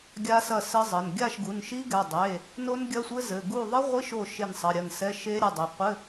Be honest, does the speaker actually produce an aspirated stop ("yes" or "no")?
no